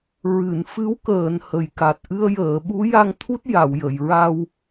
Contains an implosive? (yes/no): yes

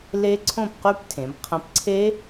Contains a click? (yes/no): yes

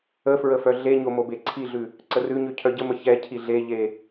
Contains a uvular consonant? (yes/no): no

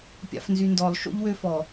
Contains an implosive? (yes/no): no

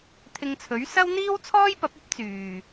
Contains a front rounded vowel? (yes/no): yes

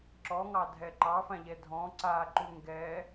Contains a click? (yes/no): yes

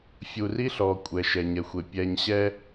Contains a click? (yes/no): no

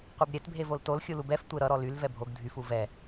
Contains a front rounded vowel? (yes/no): yes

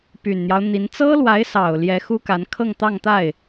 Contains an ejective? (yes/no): no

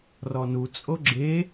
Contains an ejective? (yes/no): yes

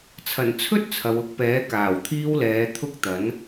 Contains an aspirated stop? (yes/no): yes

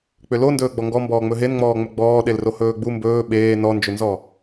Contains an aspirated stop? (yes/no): no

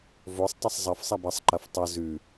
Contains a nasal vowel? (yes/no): no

